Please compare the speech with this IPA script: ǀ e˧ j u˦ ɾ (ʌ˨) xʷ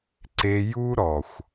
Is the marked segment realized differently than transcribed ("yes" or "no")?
yes